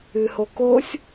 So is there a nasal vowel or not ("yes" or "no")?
no